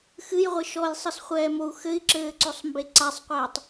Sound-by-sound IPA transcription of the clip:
xɨjʁʷɘ ʃɔjsˤɨsχʷɛːmou̯ xɘi̯ǁɘːǀosˤmbe ǀasˤqʷɛːtˤ

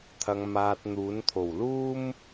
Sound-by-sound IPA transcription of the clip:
t̪ʰɐ˧ŋmaː˧t̚n̪uː˨˥n t̪ʰo˨˩wluː˥m

